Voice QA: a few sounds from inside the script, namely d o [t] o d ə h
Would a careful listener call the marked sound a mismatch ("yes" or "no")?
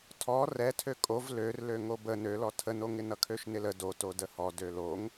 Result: no